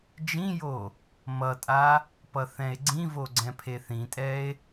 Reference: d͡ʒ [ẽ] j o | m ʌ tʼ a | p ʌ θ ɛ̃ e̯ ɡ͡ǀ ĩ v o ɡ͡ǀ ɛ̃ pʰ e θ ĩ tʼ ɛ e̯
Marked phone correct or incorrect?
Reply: incorrect